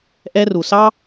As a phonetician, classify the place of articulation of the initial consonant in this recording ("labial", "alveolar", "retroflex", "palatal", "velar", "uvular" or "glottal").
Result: glottal